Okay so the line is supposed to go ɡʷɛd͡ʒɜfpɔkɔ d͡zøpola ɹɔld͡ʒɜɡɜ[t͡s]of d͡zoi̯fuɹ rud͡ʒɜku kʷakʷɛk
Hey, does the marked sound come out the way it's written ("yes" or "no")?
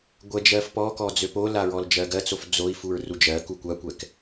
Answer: yes